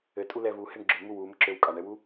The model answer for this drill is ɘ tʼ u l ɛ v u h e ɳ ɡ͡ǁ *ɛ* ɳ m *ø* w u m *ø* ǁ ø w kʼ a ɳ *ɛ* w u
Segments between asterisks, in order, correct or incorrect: incorrect, incorrect, incorrect, correct

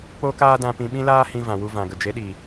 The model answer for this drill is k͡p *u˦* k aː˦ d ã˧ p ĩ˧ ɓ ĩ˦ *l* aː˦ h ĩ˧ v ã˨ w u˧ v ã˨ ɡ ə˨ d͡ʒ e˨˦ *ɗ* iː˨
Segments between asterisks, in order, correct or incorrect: incorrect, correct, correct

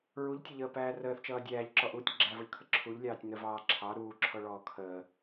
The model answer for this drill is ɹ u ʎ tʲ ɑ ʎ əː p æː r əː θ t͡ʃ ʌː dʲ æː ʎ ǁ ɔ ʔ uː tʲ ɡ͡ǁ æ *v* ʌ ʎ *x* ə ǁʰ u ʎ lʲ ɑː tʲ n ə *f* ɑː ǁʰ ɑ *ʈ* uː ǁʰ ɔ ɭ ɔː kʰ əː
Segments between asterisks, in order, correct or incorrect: correct, incorrect, incorrect, incorrect

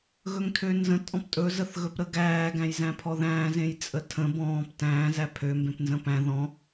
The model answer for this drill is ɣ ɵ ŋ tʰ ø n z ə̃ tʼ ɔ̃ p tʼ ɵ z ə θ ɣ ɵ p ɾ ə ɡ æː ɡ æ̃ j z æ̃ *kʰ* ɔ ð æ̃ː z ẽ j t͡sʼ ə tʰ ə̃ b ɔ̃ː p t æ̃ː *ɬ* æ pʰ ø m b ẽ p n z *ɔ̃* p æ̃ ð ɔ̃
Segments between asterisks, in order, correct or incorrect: incorrect, incorrect, incorrect

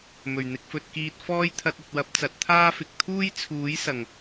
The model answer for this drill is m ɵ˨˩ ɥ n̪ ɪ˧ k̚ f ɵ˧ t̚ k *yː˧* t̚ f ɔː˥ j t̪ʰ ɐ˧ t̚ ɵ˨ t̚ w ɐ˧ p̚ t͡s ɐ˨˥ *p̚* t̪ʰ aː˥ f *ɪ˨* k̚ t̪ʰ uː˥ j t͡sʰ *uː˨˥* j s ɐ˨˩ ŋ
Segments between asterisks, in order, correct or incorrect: incorrect, incorrect, correct, correct

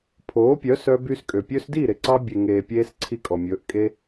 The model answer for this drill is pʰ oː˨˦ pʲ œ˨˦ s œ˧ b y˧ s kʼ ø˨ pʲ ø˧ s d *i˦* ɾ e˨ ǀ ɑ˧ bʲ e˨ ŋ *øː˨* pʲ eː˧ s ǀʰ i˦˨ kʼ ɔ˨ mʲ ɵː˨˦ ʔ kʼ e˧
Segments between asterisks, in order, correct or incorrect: incorrect, incorrect

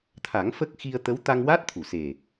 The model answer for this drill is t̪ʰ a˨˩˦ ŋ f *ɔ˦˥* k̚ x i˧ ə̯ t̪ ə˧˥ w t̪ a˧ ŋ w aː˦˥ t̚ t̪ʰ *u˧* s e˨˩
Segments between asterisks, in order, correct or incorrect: incorrect, incorrect

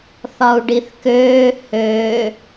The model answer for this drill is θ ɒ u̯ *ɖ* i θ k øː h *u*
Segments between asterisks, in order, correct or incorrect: correct, incorrect

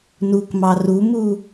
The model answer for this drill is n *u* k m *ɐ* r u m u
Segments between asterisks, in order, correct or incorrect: correct, incorrect

